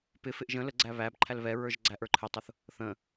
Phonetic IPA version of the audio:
pɪfɪʔ ʒə̃ ləɡ͡ǀæ βæbǃʰæl βɛɹə˞ʒ ɡ͡ǀæʔə˞ǃʰɪtˤʊθ | θə̃

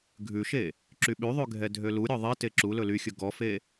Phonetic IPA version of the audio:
ɡʱʉʃe | ǁyɓyðˤʉ ɡʱɛdʱøluɾʲɔ ðˤɛte ǁulɵ lyxʲɵ ɡɔfe

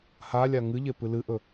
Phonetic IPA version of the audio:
halʲa ŋɨʎe pɨlɨʔɵ

